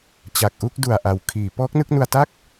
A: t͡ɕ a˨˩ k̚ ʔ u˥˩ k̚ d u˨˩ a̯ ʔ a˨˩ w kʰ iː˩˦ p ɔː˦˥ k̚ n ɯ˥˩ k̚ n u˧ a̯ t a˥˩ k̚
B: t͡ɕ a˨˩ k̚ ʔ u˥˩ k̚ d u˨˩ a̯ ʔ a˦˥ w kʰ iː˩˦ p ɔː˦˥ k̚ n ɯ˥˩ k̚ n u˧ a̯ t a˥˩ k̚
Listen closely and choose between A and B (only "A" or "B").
A